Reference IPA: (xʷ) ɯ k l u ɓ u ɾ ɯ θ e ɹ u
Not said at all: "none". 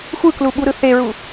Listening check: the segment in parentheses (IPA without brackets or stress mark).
xʷ